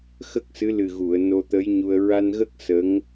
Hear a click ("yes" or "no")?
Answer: no